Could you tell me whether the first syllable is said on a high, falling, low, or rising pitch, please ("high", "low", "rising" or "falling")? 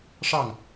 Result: falling